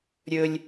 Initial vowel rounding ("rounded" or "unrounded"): rounded